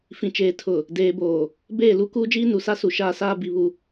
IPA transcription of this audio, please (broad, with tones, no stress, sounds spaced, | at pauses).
f ĩ˨ t͡ʃ eː˨ tʰ ʊ˨ | d eː˨ b oː˨ | b eː˦˨ l u˦ k uː˦ d͡ʒ iː˦ n u˨ s a˦ s u˨ ʃ aː˦ s aː˦ b i˨ β u˨